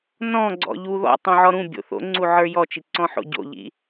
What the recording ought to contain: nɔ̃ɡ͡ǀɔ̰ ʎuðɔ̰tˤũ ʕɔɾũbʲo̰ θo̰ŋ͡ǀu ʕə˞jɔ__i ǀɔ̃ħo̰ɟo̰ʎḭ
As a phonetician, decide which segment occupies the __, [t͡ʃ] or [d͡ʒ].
t͡ʃ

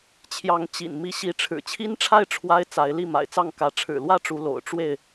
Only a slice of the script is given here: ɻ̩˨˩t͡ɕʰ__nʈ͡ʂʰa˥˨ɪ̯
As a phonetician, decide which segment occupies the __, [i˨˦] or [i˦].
i˦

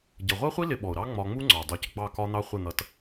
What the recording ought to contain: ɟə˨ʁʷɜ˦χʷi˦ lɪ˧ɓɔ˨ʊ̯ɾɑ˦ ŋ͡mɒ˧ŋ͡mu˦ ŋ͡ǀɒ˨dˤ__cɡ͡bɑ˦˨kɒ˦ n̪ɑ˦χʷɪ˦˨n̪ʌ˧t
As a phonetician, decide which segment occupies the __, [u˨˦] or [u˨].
u˨˦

